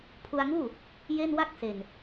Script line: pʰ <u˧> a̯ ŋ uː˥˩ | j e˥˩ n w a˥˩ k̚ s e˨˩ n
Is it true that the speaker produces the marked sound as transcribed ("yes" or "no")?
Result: yes